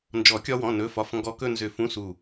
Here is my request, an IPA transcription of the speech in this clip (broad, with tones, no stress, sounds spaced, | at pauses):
n d͡ʒ ɔ˨˩˦ kʲ ɒ˧ w ɔ̃˩˧˩ n ɵ˩˧˩ f ɒ˩˧˩ f ŋ ɡ ɔ˧ k ɵ˥˧ n z ʏ˧˩ f ũ˧˥˧ s u˧˩